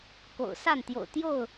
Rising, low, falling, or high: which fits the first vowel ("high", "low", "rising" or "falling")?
low